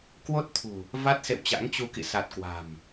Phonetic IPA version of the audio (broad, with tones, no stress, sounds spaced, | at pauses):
k w o˦˥ t̚ t̪ʰ ṳ˨˩ | v a˦˥ t̚ s ḛ˧˨ w t͡ɕ a̰˧˥ ŋ t͡ɕ u˧ k ḭ˧˨ s a˨˩ t̚ k w a̤˨˩ m